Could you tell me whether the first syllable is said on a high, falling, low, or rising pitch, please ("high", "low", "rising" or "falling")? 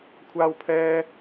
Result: high